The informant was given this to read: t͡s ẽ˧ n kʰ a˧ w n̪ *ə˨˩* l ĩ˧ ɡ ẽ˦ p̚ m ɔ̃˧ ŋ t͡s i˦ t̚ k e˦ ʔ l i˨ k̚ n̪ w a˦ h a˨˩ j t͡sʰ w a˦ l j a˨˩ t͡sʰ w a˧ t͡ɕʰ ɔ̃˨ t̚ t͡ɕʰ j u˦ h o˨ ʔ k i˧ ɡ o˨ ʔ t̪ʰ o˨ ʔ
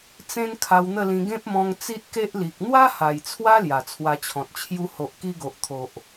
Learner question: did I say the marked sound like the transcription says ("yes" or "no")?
no